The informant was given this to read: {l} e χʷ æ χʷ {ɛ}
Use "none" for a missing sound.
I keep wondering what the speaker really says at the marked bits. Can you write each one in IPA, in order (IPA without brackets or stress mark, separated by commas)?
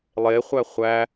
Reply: lˠ, æ